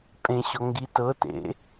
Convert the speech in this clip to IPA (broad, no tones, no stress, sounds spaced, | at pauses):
pʼ ẽ ɕ ɔ ŋ ɡ i t ɤ t ḛ